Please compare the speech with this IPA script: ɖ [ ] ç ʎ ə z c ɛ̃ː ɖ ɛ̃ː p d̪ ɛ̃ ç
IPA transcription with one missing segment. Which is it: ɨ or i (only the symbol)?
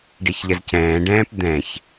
i